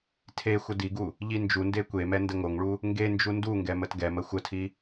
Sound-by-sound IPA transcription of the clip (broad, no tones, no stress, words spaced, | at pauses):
tʰe xʷədiɡu | ʎind͡ʒunde kʷemɛ ndəŋoŋɭu | ŋɡe nd͡ʒunduŋɡɛ mətɡɛmə xʷətʰi